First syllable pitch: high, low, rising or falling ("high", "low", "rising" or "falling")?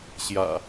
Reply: low